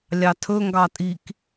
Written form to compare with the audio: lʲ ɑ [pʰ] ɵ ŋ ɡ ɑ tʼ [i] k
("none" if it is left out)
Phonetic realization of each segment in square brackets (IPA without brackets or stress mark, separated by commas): tʰ, i